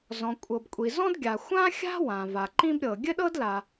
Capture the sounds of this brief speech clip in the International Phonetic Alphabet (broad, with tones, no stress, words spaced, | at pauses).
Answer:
zɔ̃˩kʷʼɤ˩bkʷʼi˩ zɔ̃˥dɡʲa˩ xʷã˥xʲa̤˥wã˩ va˩ǃĩ˥bɾʲɤ˩ ɡʲɘ˥ɗɤ˥dla˩